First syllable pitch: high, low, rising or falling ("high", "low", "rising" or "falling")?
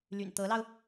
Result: low